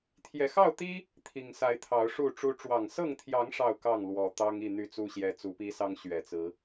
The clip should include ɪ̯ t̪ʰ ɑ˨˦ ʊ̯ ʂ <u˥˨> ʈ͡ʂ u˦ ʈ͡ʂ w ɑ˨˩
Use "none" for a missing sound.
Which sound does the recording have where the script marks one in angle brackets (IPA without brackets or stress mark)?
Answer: u˥˨